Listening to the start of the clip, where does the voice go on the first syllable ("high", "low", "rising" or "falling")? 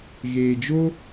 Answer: low